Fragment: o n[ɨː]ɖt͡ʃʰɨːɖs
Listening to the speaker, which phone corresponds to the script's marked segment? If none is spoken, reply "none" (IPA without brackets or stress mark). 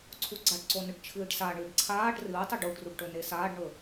ɨ